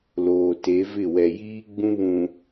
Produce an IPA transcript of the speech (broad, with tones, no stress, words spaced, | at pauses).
loː˨te˨˦vɪ˦˨ wɛ˨jiː˦ ɡ͡bũ˦βũ˨